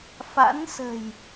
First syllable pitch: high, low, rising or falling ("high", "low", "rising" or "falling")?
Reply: rising